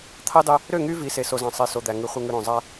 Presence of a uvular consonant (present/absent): present